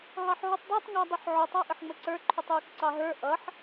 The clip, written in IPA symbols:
ɦ ɑ ħ ɦ ʊ tˤ dˤ æ tˤ ŋ æ dˤ u ħ ʕ ʊ tˤ æ ʔ ə ħ ŋ͡m ə ǀ ə˞ ǃʰ u tˤ j u k ǀ ɑ ɦ ə˞ ʔ ʌ ħ

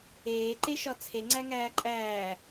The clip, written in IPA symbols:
eː ǃ e ʃ ɒ t͡sʰ e ŋ͡ǀ æ ŋ æː ǃʼ æː

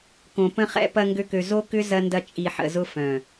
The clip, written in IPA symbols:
k õ˨ p ə̃˧ χ ɛ̰˧ p ɐ˧ ŋ ɡ ø˦ k ø˧ z o˦ k ʏ˦ z ɐ˦ n d ɐ˦ t͡ʃʼ i˧ ħ ə̰˧ z ʊ˦ f œ̃˨

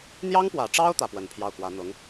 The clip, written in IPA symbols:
n̪ j ɑ˥ ŋ p w ä˨˩ ʈ͡ʂ ɑ˥ ʊ̯ t̪ ä˥˩ p w ə˧˥ n pʰ j ɑ˥˩ ʊ̯ k w ä˧˥ n̪ ʊ˧˥ ŋ

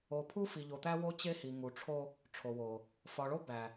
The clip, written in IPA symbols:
o˨ pʰ u˦ f i˨ ʎ o˨ t̪ æ˦ w o˦ t͡ɕ e˦ h i˨ ŋ u˨ ʈ͡ʂʰ o˦ | ʈ͡ʂʰ o˨ w o˨ | f ɒ˨ ɭ o˦ b æ˨

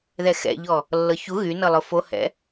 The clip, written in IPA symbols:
ð ɛ x ɛ̰ ʎ ɔ | lː ɤ ç u ɣ y n ɤ lˠ ʊ f o h ɛ̰

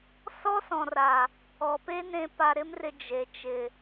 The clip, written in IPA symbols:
s ɔ˦ s ɔ̃˨ r a˨ | ɔ˨ p e˦ n ẽ˧ p a˧ ɾ ɪ˦ m r ɪ˧ d͡ʒ e˨ t͡ʃ ɪ˨

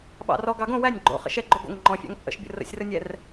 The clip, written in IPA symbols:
ɓ ɑ̰ r ɔ ɡ ɑ ɡ õ w æ nʲ ɡ͡ǃ o̰ χ ə̰ ʃ ɛ ɡ͡ǃ o ɡ o̰ ŋ ŋ͡ǃ ɔ̃ fʲ ɑ̰ ŋ t͡sʼ ə̰ ʃ bʲ ə̰ r ə̰ sʲ r ə nʲ ɛ r

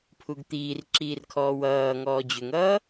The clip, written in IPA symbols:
pʰ u ɡ t̪ iː r ǁ iː r kʰ ɔː w ʌː ŋ ɔː d͡ʑ ʏ ŋ ʌː

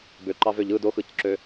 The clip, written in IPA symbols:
b ø ǃ ɑ v ø ʎ ɯ d o x ɯ c ǁ ø

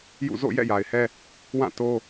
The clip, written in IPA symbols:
j ṵ˦˨ z o̰˦˨ j ɛ̰˦˨ j a˨ ɪ̯ h ɛ˦ | w ã˦˨ t o˦

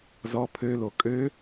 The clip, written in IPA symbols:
z ɔ pʰ ø l o kʼ ø

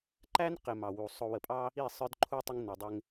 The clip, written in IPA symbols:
ǃ æ˦ n q ɪ˨ m ɑ˨ w u˨ sˤ ʊ˨ w ə˨ pʼ ɑ˦ | i˦˨ sˤ ə˞˦ d ǃʰ u˦ tˤ ə˦ ŋ n ʊ˨ dˤ ɪ˦ ŋ

